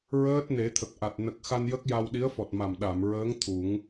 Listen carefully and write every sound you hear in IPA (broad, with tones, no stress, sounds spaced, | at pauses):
ɹ əː˦˥ t̚ n e˨˩˦ t̪ʰ ə˨˩ k̚ ʔ a˨˩ t̚ n ə˨˩ k̚ x a˧ n j ə˦˥ k̚ j a˧ w ɗ i˧˥ ə̯ f ɔ˨˩ t̚ m a˨˩ m ɗ a˨˩˨ m ɹ əː˧˥ ŋ t̪ʰ u˨˩˦ ŋ